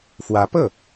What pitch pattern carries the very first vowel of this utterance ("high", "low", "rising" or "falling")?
rising